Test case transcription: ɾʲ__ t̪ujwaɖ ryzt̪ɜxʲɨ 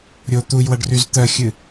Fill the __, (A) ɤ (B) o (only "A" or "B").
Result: B